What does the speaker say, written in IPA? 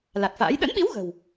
l a˨˩ t̚ f a̰ː˧˥ j ɗ ə̰˧˥ n ɓ i˨˦ w ɣ ə̤˨˩ w

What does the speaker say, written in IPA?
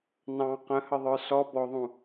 n ɑ̃ q ə̃ h ə ðˤ ə˞ s ɔ b ɔ ðˤ ũ

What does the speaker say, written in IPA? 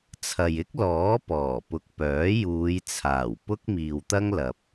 t͡sʰ ɐ˨ j ɪ˥ k̚ l ɔː˨˥ p ɔː˨˩ p ʊ˨ k̚ p œː˨˥ j uː˨˧ j t͡sʰ aː˨˩ w p ʊ˥ k̚ m iː˨ w t̪ ɐ˥ ŋ l ɐ˨ p̚

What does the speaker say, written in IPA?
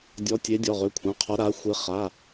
dʲ ɔ˨˦ tʲ e˨˦ dʲ ɔ˩˧˩ ʁ ø˩˧˩ kʷʰ ã˩˧˩ qʰ ɔ˨˦ ɾ a˨˦ xʷ e˨˦ χ a˩˧˩

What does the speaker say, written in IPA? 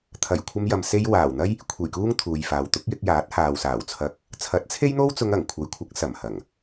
t̪ʰ ɐ˨˩ j kʷʰ ɐ˧ m j ɐ˨ m s e˧ j w aː˨˩ w n̪ ɐ˥ j | kʷʰ e˨˩ j k uː˧ ŋ t̪ʰ uː˨ j f aː˨ w t̪ ʊ˨˥ k̚ j ɪ˧ k̚ j aː˨˥ t̚ h aː˨ w s aː˨˩ w t͡sʰ ɐ˧ k̚ | t͡sʰ ɐ˨˥ t̚ t͡sʰ e˥ j n̪ o˥ w t͡s ʊ˧ ŋ ɐ˨˩ ŋ kʷʰ ɐ˨ j kʷʰ ɐ˨˥ k̚ s ɐ˨˩ m h ɐ˨˩ ŋ

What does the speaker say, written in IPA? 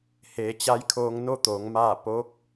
h eː˩˧ t͡ɕ a˧˥ j kʰ oː˧ ŋ n o˥˨ t̪ oː˩˧ ŋ m aː˥˨ p oː˧˥ k̚

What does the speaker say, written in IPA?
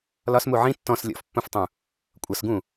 l ɒ s m u ʕ ĩ tː ɔ̃ s lʲ ɔ̰ f pː ũ f tˤ ũ | kʷʼ ʌ s ɡ ũ

